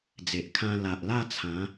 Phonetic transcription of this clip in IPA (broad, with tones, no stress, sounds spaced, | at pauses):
d͡z e˨ ʔ kʰ ã˧ l a˨ ʔ l a˥˧ t͡sʰ ã˨˦